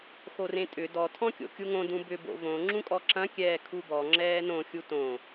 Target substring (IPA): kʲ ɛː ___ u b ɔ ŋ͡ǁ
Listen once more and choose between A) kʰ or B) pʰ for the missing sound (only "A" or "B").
A